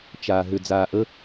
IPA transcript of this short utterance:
t͡ʃ aː ɦ ʏ d͡z aː ʔ ə

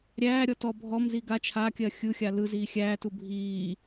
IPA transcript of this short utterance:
ɾʲ æː ɾʲ ɔ t ɔ bʱ ɔ m z i ɡ a t͡ʃʰ a kʲ ɜ xʲ ɯ xʲ a l ɯ z iː xʲ æː t u bʱ iː

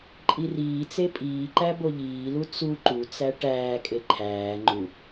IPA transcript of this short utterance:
ǃʼ i r iː t͡s e pʼ iː ǃ æ b o ʎ iː l u t͡s u ǃ u t͡s æ ʈ æː kʼ e ǃʰ æː ŋ͡ǃ u

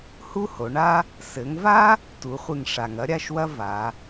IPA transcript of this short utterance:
h u˥ h o˩˧ ɳ a˥ | s ɘ˩˧ ŋ v a˥ | t u˩˧ χʷ ɨ˧˩ ŋ ʂ a˩ ŋ ɐ˥ ɾʲ a˥˧ ʃ w ɐ˥ v a˩˧

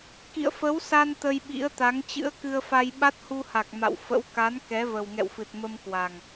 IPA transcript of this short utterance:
k ḭ˧˨ ə̯ f ə˨˦ w s a˧ n t̪ ə˧ j ɓ ḭ˧˥ ə̯ t̪ a˨˦ ŋ t͡ɕ ɨ̰˧˥ ə̯ k ɨ˧ ə̯ f a˧ j ɓ a˦˥ t̚ h u˧ h a˨˩ k̚ m a̰˧˨ w f ə̰˧˥ w k a˨˦ n k ɛ˨˦ v ə˨˩ w ŋ ɛ̰˧˨ w f ɨ˨˩ t̚ m ə˧ m k w a˨˩ ŋ

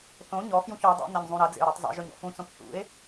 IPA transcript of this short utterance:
θ õ ɲ ɔ f j ũ ç ɔ dˤ o̰ n ɐ ɲ zˤ ũ ɾ ɐ d͡z ḛ o̯ ɾ œ tˤ zˤ ḛ ʒ œ ɲ ɔ̰ f ũ t͡s õ p θ ṵ e̯

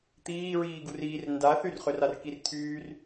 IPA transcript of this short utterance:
t̪ iː ɹ iː ɡ u r iː r n d a θ y r χ ø r a r k i r t̪ʰ yː r

